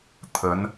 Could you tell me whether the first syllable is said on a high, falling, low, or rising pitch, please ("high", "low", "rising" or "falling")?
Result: rising